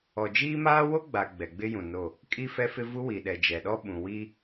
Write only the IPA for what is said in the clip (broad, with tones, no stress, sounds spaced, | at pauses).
ɔ˨ d͡ʒ iː˦ m aː˦ w o˦ ɡ͡b a˨ ɡ͡b ɛ˨ ɡ͡b ɪ˦ j ũ˨ n o˦˨ | kʼ i˦ f ɛ˦ f ɪ˦ v u˦ w i˨ ɗ ɛ˨ d͡ʒ ɛ˨ ɗ ɔ˦ ɓ ũ˨ w i˦